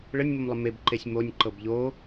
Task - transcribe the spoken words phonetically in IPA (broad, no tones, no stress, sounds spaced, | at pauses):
ɭ ə nʲ m o m lˠ ə m e b ǃ e sʲ m o nʲ ǃ ɤ b ʎ o